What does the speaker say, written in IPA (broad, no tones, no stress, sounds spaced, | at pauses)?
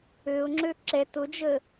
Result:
ø ʊ̯ ŋ͡ǁ ø ǁ ɛ t ʊ d͡ʒ ə